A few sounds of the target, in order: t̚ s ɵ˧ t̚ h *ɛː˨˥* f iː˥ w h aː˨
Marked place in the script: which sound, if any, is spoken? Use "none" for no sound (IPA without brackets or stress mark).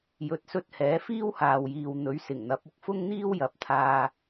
ɛː˨˥